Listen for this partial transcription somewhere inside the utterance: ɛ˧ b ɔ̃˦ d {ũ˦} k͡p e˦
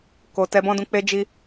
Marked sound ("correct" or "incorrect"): incorrect